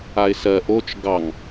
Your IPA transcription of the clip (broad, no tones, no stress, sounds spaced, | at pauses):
a ɪ̯ s ɜ ʔ o t͡ʃ ɡ ɑ ŋ